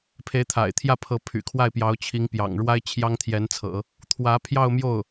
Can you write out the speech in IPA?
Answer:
pʰ e˧˥ ɪ̯ t̪ʰ a̰˨˩ ɪ̯ t̪ʰ j ä˥˩ pʰ ɤ˧˥ pʰ y̰˨˩ kʰ w a˥˩ ɪ̯ p j ɑ˧˥ ʊ̯ t͡ɕʰ i˧˥ ŋ p j ɑ̰˨˩ ŋ ɻ w a˥ ɪ̯ t͡ɕʰ j ɑ˥ ŋ t̪ʰ j ɛ˧˥ n t͡sʰ ɤ̰˨˩˦ | t̪ʰ w ä˧˥ pʰ j ɑ˥˧ ʊ̯ m j o˥˩ ʊ̯

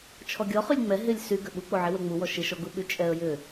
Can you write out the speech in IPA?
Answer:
t͡ʃʰ ɔ ɡʲ ɔ χ y lʲ ŋ͡m ɛ ɦ ɪ lʲ s y ɡ ʏ ɓ u k͡p o ʕ i w ɛ ŋ͡m u w ɔ ʃ ɪ ʃ ɔ ɡ u ɓ y t͡ʃʼ ɛ ə̯ j ʏ

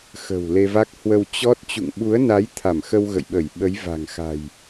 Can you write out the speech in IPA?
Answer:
x ə̤˨˩ w l e˧ v a˦˥ k̚ h w ə˧ w t͡ɕ ɔ˦˥ t̚ t͡ɕ ṵ˧˨ ŋ ɓ u˨˦ ə̯ n a˨˦ j t̪ʰ a˧˩ m x ə˧ w ɣ ə̰˧˨ j ɓ ə˧˩ j ɓ ə˨˦ j v a̤˨˩ ŋ x a̤˨˩ j

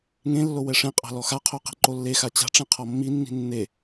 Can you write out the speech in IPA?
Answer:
ŋ ẽ lː o w ɛ ʂ ẽ qʼ a̤ l ɔ x a qʰ o q i̤ ǃ o lː e x a t͡ɕ a̤ ʈ͡ʂ ẽ qʰ ɔ mː i nː i̤ nː e

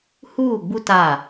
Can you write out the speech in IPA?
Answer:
h uː˦˨ ɡ͡b u˦ t a˦˨

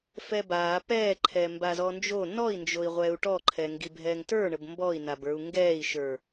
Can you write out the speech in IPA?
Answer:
f ɛ b aː p ɛː ǃʰ ɛ m b a z ɔ n d͡ʒ o n ɔ i̯ n d͡ʒ o i̯ ʁʷ ɛː u̯ ʈ ɔ ǃʰ ɛ ŋ ɡ i bʱ ɛː ŋ t ə˞ ɳ ə b m b ɔ i̯ n a b ə˞ u̯ ŋ ɡ ɛː i̯ ʃ ə˞

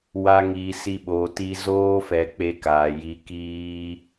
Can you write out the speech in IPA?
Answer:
w a˧ ŋ iː˨ s i˧ ɓ oː˨ t i˧ z oː˦ f ɛ˧ k͡p e˧ k aː˨ j i˧ k iː˦

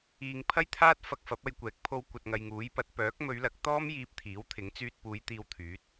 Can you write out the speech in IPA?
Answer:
iː˨ ŋ pʰ ɐ˥ j t̪ʰ aː˥ t̚ f ɐ˧ k̚ f ɐ˨˥ p̚ ɐ˧ j kʷ ɛː˨˥ k̚ pʰ o˧ w kʷ ɐ˨ t̚ ŋ ɐ˨ j ŋ uː˨˥ j p ɐ˨˥ t̚ p œː˨˥ k̚ m ɵ˨˧ ɥ l ɐ˨˥ k̚ t̪ ɔː˥ m j iː˧ p̚ t̪ʰ iː˨˥ w t̪ʰ ɪ˨˥ ŋ t͡s yː˧ t̚ p uː˨˧ j t̪ iː˧ w t̪ʰ yː˨˥ t̚

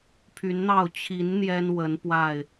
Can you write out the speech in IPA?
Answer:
pʰ y˨˦ n n̪ ɑ˥˨ ʊ̯ t͡ɕʰ i˨˦ n n̪ j ɛ˦ n w ə˨˦ n p w a˥˨ ɪ̯

